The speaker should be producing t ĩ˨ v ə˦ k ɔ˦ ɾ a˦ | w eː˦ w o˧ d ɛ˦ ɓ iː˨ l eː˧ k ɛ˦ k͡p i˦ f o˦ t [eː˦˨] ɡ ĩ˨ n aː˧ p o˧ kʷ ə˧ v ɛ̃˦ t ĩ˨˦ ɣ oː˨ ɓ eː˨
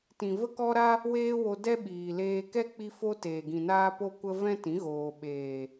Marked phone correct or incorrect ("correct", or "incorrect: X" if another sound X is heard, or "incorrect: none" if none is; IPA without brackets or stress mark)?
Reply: incorrect: eː˨